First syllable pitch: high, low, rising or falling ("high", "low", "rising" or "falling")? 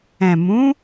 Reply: low